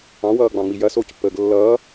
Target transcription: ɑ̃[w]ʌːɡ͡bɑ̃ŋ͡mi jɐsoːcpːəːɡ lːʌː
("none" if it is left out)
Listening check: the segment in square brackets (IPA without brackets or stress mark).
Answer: w